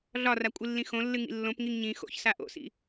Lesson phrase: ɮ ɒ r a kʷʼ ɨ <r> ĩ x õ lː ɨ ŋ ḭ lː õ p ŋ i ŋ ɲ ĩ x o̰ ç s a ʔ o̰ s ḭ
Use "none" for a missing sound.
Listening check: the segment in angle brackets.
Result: lː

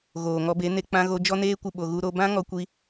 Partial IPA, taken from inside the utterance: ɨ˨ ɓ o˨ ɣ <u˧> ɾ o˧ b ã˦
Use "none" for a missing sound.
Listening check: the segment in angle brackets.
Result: u˧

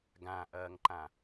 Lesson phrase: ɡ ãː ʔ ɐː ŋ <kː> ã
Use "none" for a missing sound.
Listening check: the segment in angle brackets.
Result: ǃ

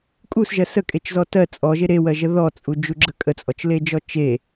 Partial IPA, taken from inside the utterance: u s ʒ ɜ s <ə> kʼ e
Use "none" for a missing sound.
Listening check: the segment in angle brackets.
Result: ə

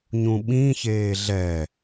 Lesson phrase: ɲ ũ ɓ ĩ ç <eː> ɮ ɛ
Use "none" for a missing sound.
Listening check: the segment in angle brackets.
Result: eː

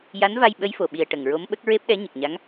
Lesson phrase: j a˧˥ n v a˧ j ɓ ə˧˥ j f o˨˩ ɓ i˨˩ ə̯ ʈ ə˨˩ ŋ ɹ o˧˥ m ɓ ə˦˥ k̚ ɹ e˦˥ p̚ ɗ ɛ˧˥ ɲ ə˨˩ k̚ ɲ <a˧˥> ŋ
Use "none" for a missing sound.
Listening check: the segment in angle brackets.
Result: a˧˥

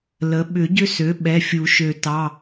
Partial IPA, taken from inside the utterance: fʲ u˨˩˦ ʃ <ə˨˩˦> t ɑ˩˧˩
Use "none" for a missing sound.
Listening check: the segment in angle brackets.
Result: ø˨˩˦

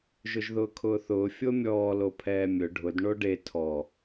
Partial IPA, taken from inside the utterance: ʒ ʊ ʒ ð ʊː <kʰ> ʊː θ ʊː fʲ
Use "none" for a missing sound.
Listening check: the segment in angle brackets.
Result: kʰ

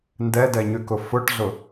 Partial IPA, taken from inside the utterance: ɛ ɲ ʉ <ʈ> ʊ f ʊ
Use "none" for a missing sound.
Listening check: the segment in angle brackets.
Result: k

